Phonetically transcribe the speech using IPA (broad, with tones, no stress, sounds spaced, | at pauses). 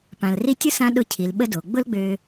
p ã˩ l r i˥ tʲ ʊ˥ s ã˧˥ ɗ ʊ˧˥ cʰ i˩˧ l ɓ ə˥ d o˩˧ ɡ͡b ʊ˥ l ɡ͡b ø˧